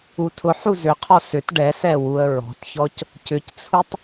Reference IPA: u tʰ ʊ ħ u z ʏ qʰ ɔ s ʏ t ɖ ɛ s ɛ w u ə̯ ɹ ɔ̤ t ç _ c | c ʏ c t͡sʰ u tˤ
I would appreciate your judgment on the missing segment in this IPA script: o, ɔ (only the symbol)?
ɔ